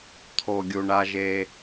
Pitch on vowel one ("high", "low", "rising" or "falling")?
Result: low